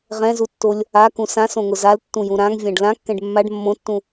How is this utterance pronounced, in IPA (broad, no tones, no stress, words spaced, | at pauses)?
ʁɛ̃zutːolʲ | akũ sãsõŋʊ zaltːũjũ ɾãŋvʲɛ̃ɖ lãkːɛ̃ɖ mːaɖ mːõtːũ